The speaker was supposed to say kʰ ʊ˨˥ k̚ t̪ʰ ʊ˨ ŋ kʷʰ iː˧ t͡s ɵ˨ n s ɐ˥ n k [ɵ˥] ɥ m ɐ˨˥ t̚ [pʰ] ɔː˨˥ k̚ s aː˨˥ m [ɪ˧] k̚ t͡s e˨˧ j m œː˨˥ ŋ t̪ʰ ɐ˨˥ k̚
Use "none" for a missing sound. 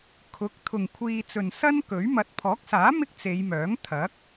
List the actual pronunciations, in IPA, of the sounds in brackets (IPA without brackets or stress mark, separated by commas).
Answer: ɵ˨˥, pʰ, ɪ˥